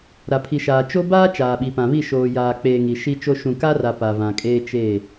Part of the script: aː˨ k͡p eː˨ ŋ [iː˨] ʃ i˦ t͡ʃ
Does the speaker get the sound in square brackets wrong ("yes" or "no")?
yes